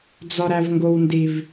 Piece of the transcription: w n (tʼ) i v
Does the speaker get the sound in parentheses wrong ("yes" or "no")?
yes